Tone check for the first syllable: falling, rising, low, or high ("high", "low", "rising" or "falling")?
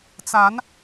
rising